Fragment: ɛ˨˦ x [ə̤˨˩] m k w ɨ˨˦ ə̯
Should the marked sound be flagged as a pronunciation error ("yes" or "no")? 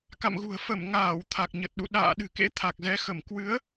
yes